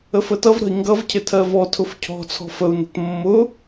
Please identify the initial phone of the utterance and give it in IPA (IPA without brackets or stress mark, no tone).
ə